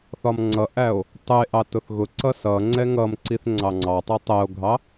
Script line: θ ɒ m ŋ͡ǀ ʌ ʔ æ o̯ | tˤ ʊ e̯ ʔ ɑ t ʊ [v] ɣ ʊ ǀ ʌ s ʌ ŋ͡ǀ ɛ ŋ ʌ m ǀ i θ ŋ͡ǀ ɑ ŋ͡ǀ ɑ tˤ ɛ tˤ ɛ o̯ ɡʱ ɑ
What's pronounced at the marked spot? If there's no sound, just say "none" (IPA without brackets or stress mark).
θ